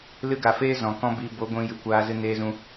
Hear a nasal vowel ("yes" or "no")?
yes